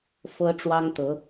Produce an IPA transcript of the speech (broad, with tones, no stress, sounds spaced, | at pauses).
f ɤ˦ ʈ͡ʂ w ɑ˦ ŋ t̪ ɤ˨˦